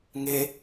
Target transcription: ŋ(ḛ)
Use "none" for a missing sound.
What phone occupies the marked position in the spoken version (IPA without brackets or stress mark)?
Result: e